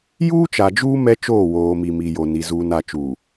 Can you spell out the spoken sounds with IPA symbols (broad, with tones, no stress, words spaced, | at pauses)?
juː˦t͡ʃa˨d͡ʒuː˦ mɛ˦t͡ʃoː˦˨woː˨mi˨ mi˨jo˨ni˨ zuː˨na˨t͡ʃu˨